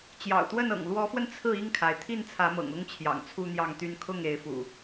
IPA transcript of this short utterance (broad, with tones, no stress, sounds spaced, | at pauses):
t͡ɕ j ɑ̰˨˩ ʊ̯ t̪ w ə˥˨ n ɤ̰˨˩ ŋ l w ɔ˨˦ f w ə˧ n t͡sʰ ɹ̩˥˨ i˥˨ ŋ kʰ a˩ ɪ̯ t̪ʰ i˥˨ n t͡sʰ ä˨˦ m ɤ̰˨˩ ŋ ʊ˦ ŋ t͡ɕʰ j ɑ̰˨˩ ŋ t͡sʰ u˦ n̪ j ɑ˥˨ ŋ t̪ y˦ n kʰ ʊ˥˨ ŋ e˨˦ ɪ̯ f ṵ˨˩